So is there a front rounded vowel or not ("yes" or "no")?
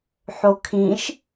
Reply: no